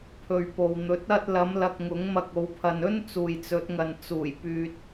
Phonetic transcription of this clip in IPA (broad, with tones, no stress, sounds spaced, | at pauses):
pʰ ɵ˨ ɥ p o˨ w n̪ ɵ˨˥ t̚ ɐ˥ t̚ l ɐ˨˧ m l ɐ˧ k̚ ŋ ʊ˨˥ ŋ m ɐ˧ k̚ o˨˧ w pʰ ɐ˨ n ɵ˥ n t͡s uː˨ j t͡s ɵ˨˥ t̚ ŋ ɐ˨ n t͡s uː˨˩ j p yː˨ t̚